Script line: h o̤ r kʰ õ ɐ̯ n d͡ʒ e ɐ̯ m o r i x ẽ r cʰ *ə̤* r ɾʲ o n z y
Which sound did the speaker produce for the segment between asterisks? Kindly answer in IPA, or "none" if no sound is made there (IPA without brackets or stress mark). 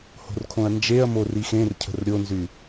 ə̤